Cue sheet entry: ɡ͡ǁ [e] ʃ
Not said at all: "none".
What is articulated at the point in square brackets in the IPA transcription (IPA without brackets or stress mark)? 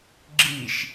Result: i